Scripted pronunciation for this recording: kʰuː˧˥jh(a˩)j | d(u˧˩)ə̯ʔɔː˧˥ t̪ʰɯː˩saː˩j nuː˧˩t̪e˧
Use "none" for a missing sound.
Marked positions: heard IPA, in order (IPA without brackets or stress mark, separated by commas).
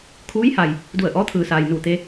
a˩, u˧˩